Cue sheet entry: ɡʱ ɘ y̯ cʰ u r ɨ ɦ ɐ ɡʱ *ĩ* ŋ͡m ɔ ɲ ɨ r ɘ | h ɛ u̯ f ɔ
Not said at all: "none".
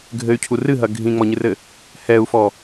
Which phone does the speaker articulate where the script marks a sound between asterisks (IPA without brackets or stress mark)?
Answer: ĩ